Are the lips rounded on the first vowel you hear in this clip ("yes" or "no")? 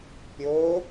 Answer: yes